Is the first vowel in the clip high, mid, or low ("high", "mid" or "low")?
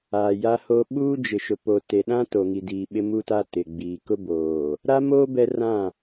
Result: low